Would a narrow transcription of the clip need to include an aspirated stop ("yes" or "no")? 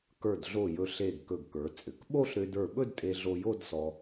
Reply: no